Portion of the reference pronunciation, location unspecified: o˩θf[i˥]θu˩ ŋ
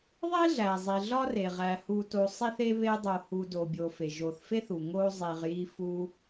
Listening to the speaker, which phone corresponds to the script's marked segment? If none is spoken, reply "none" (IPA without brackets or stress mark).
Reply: e˥